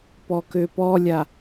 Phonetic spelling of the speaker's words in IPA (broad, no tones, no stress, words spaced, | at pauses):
pɔkøpɔlʲa